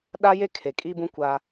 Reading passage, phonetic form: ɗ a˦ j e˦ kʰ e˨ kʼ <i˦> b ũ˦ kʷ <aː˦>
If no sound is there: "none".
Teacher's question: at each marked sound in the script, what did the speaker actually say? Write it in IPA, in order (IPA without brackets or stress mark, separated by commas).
i˦, aː˦